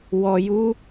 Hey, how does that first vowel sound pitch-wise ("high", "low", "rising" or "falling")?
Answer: low